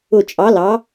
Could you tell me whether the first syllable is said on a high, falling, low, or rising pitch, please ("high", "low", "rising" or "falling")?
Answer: falling